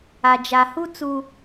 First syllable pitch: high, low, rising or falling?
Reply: low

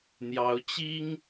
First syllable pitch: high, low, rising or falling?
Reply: rising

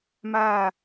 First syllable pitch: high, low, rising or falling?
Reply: falling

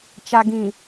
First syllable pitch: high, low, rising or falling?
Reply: low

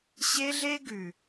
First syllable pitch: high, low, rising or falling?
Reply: high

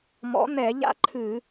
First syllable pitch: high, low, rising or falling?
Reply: rising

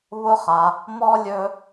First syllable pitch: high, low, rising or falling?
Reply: high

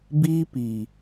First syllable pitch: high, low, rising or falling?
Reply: high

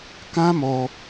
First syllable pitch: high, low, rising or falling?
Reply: high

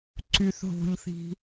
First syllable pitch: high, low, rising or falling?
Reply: low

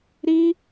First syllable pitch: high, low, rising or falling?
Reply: high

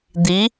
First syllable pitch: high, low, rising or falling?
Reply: rising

